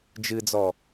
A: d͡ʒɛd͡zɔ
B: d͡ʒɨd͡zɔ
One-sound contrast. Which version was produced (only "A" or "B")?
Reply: B